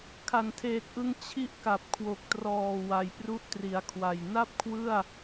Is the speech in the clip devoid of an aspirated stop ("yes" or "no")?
no